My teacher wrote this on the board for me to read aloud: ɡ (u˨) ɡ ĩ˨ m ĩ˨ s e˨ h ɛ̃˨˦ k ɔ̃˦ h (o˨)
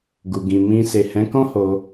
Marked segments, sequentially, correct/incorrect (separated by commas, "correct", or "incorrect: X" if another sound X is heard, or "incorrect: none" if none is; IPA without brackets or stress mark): correct, incorrect: o˧